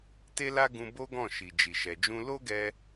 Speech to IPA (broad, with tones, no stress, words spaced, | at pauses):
te˦la˦ɡũ˧ bo˦ɡɔ̃˦˨ ʃi˨d͡ʒi˨ʃɛ˨d͡ʒũ˧ lo˦ɡɛ˧